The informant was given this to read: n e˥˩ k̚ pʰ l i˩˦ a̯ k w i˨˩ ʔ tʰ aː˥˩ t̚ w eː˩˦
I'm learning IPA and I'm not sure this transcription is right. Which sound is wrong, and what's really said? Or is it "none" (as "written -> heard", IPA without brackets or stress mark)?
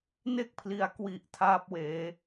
t̚ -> p̚